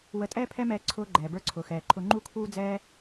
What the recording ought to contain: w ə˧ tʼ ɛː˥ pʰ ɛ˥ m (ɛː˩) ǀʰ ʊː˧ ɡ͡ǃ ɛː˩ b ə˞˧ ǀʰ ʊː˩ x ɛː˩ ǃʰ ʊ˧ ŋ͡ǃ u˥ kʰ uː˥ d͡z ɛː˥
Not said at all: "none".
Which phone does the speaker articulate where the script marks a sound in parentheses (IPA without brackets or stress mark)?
ɛː˧